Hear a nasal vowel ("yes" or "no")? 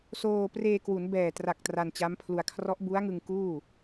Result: no